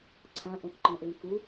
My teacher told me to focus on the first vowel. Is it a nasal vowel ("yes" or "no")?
yes